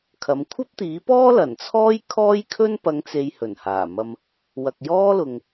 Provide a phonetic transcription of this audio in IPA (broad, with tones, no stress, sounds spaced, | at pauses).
kʰ ɐ˨˧ m kʷʰ ɐ˥ p̚ t̪ iː˨˥ p ɔː˥ l ɐ˨˩ n t͡sʰ ɔː˥ j kʰ ɔː˥ j kʰ ɵ˥ n p ɐ˨˧ ŋ t͡s e˨ j h ɵ˨˩ n h aː˨˩ m ɐ˧ m | w ɐ˨ k̚ j ɔː˥ l ʊ˨ ŋ